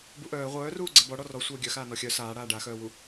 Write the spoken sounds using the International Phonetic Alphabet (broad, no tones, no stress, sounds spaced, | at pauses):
b u ʔ œː ʁʷ œː r uː ɡ͡ǀ ɛ b ɔ ɽ ɔ r ɔ sʷ œː ɡʲ œ x aː n ɔ xʲ œ s aː ɽ aː ɖ a x œː w u